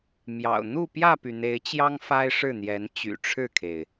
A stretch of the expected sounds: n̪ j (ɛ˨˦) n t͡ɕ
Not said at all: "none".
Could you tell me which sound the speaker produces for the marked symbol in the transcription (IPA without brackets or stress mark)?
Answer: ɛ˨˦